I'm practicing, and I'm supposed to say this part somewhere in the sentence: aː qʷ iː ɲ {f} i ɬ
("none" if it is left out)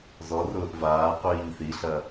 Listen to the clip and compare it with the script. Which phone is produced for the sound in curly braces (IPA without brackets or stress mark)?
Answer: θ